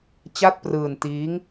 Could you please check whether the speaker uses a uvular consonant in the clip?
no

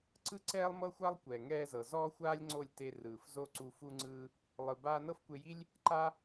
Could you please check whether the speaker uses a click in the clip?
yes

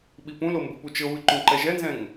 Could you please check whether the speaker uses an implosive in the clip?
yes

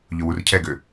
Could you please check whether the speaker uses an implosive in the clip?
no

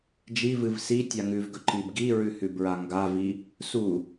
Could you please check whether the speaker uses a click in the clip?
yes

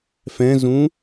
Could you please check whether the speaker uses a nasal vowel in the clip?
yes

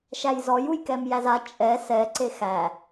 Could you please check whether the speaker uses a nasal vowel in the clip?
no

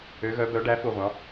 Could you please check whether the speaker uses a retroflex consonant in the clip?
yes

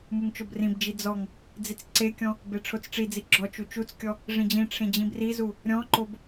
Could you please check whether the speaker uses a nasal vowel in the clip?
yes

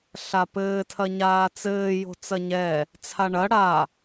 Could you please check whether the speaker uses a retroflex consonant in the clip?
yes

